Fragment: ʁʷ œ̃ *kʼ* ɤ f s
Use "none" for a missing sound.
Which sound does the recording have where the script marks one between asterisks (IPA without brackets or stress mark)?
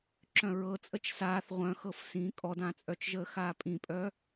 x